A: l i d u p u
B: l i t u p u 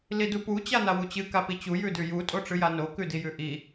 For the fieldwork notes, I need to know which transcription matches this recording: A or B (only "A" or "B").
A